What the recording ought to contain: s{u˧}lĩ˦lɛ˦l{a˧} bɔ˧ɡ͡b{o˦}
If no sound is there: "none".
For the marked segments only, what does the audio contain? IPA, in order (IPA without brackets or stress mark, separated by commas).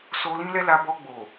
o˧, a˧, o˨